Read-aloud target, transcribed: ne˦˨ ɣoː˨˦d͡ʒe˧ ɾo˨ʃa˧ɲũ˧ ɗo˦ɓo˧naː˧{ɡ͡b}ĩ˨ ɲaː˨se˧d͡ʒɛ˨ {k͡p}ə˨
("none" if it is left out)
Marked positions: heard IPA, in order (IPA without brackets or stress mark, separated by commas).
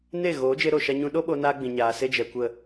ɡ͡b, kʷ